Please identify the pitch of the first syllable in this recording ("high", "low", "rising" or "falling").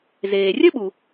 low